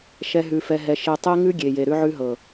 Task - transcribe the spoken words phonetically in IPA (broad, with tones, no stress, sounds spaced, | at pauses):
ʃ ɛ˧ ɦ ʉ˧ f ɛ˧ ɦ ɛ˧ ʃ e˧ tˤ e˦ ŋ ʉ˦ ɡʲ e˨ j e˨ ɾ ʉ˧ ʕ ʉ˧ ɦ ɤ˨